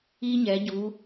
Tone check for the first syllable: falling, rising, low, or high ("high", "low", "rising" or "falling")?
high